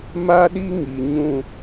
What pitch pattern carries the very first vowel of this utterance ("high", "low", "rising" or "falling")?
high